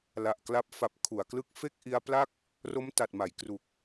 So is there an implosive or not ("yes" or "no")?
no